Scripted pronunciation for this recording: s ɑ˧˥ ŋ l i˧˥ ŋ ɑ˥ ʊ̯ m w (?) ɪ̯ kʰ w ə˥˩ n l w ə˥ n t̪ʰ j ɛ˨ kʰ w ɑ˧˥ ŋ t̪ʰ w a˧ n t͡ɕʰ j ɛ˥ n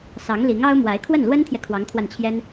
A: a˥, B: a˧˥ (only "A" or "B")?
B